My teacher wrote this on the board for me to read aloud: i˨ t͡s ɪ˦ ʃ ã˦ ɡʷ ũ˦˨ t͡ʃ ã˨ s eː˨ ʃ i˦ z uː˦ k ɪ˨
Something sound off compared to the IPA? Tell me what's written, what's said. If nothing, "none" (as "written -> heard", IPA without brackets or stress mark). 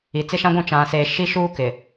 z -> ʃ